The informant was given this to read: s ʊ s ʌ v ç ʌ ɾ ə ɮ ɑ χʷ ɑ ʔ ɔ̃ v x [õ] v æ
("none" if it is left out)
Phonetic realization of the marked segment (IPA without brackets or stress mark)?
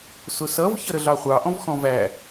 ɔ̃